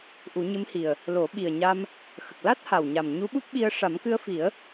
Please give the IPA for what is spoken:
ʔu˨˩˦ɲɨ˧˥mhi˨˩ə̯ | lo˨˩˦ɓi˨˩ə̯ ɲa˧m | xə˨˩k̚la˦˥t̚ha˨˩wɲa˨˩m ɲu˧˥ɓu˦˥p̚ɓi˧ə̯ ʂa˨˩˦mkɨ˧ə̯fi˨˩˦ə̯

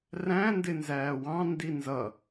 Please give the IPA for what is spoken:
ræ̃ndɪnzæː wɑ̃ndi nzʌ

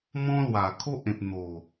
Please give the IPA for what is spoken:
mɔ̃˦lwa˨˩kʰo˦ʔ ẽ˨p̚ n̪o˨˩

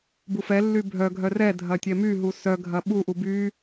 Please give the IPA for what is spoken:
bufɛ lːybʱœ ɡʱœrɛ dʱɐtʲɛmy ɦusœ ɡʱɐɓu ʔuby

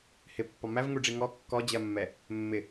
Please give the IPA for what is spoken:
hɪpːɒ mævŋuɖ͡ʐi ŋɔ kːɔd͡ʑɜmːɛ | mːɪ

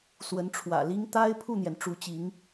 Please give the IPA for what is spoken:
swə˧˥nʈ͡ʂʰwä̰˨˩li˥ŋ t̪a˥ɪ̯ pʰu˥˩n̪jɛ˩n ʈ͡ʂu˧˥t͡ɕi˧˥ŋ

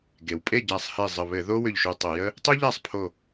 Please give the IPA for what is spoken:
ɡe˩wpʼe˥˩ɟæ˧˩sˤhe˧˩ zˤə˧˩βɘ˧˩˧ ðo˥wʏ˧˩ʎʃu˧˩ tˤə˧˩˧jə˥ | tˤu˥ʎæ˥˩sˤ pʰo˧˩

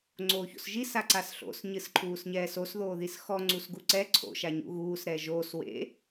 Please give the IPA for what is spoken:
ŋ͡ǀoːço̰sʒis aǀasɬo̰s ɲɨsǃʰuːsɲɛːsos ðoːðisxɔ ŋ͡ǀusɡuǀɛ ǀʰo̰ ʃaɲṵɣuːs ɾɛːʒoːs wḛ

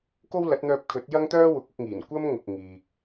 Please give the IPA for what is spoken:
ko˥wlɐ˨˥t̚n̪œː˧p̚kʰɵ˨˥t̚ jɐ˥ŋt̪œː˥ wʊ˨˥k̚ʊ˧k̚ŋiː˨˩n kʷɐ˥mŋʊ˨k̚ ŋiː˨k̚

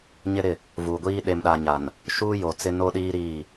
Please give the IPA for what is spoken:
ɲɪ˦ɾɪ˦˨ | vuː˨ɡʷiː˦ ɗe˨mɗa˨ ɲa˨n | ʃuː˦jo˨ t͡sɪ˦no˦ɗiː˦ ɾiː˦˨

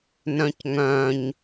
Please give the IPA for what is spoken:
nœ̃cŋœ̃ɲ

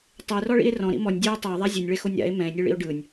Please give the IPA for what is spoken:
tˤerɔɭḭe̯ rɔ̃ɾḭ mɔnʲ dʲoe̯ tˤɤe̯ðˤa zʲɛnʲɭɛxonʲ ɾa̰e̯ mɛ̃e̯nʲɯɭḭo̯ ɖɯnʲ

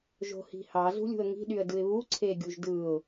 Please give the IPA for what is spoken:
ʒo̤hi̤hɑ zṳlʲṳə̯ŋi̤ ɗyə̯dɯɪ̯βu ǀʰeɡʲuʒdɯʊ̯

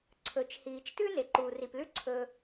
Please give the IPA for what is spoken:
ǀʰɵ˩t͡ʃ hiː˩t͡ʃtʉ˥ ne˩ǃuː˩ri˩plʉ˥ ǀʰɵː˩

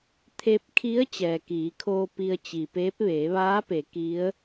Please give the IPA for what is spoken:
t̪ʰe˧p̚kʰi˧˥ə̯ t͡ɕɛː˩kiː˩˧kʰoː˧ pi˧ə̯t͡ɕi˩peː˧˥p̚ ʋeː˩˧ʋaː˧˥pe˩˧ ki˧˥ə̯

